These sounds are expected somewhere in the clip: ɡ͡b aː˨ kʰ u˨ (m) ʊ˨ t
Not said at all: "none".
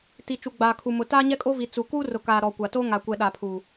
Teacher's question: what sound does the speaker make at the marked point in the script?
m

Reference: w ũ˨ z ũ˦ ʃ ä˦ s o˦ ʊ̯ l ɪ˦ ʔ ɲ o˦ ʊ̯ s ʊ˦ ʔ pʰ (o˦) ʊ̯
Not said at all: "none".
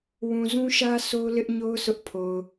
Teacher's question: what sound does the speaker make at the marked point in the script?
o˨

